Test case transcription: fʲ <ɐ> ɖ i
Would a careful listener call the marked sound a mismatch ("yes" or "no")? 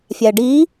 yes